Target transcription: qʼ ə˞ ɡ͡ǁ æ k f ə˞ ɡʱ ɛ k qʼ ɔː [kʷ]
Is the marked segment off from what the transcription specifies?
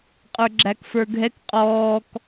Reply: yes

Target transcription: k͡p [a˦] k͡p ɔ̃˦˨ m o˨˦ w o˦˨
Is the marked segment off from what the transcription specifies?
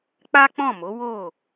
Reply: no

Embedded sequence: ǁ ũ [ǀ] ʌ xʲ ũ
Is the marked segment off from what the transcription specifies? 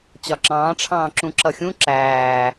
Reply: yes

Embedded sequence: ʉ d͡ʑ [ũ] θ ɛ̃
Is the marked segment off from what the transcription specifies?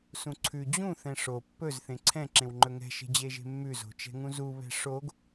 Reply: no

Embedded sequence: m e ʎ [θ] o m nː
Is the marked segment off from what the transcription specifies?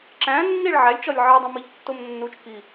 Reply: yes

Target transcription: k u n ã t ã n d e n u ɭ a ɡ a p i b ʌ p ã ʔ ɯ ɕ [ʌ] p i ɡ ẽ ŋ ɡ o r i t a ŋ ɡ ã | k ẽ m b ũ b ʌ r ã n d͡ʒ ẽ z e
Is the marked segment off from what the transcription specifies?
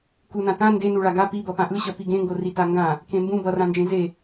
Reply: no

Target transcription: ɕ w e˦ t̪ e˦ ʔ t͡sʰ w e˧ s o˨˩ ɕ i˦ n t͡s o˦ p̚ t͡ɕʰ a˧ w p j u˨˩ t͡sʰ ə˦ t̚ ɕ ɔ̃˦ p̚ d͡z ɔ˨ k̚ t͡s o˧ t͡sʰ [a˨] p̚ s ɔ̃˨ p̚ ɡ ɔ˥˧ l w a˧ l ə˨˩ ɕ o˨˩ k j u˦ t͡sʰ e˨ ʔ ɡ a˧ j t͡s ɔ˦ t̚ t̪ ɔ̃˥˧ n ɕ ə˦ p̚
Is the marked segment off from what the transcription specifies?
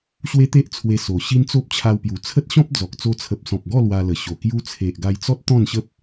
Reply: yes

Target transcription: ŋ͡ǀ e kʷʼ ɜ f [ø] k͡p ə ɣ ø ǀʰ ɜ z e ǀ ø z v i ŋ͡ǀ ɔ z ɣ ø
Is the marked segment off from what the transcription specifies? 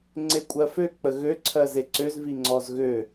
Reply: no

